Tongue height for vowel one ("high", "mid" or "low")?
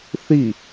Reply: high